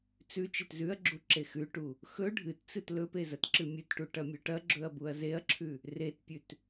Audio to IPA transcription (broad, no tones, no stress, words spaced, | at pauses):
t͡sʉ t͡ʃetzʉɐ̯ɡ͡ǁu ǁexʉʈu | xɵ ɖʱɨtt͡sɨt lɵpe zɐtǁɨmʲɨtʈu ʈɐmʲʉʈɐɡ͡ǁɵɐ̯ buɐ̯zeɐ̯ǁʰʉ | retpʲʉt